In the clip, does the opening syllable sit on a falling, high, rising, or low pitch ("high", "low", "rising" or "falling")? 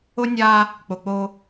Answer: high